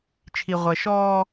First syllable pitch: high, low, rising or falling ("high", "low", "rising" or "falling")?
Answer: low